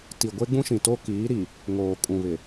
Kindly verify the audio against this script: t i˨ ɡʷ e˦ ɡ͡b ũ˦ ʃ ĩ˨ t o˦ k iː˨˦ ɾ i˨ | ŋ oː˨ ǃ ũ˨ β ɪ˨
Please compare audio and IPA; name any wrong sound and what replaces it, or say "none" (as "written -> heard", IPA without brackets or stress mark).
ǃ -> kʼ